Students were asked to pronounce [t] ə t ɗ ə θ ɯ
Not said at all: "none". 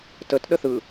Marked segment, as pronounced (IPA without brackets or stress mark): t